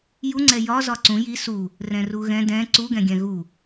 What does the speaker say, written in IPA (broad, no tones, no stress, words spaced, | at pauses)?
juŋ͡ǀɛ jɒ zɒǀũ ji su | rɛ̃ruɣɛ̃ dɛ̃ ǀuɡɛ̃ɡʲɛ̃ ɣu